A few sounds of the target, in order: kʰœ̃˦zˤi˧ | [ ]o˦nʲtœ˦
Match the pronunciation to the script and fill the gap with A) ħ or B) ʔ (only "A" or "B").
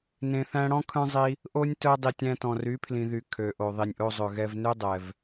B